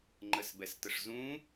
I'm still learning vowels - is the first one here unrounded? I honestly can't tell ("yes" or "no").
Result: yes